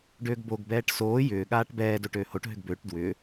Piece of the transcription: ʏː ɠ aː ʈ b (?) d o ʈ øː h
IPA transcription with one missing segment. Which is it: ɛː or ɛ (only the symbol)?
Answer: ɛː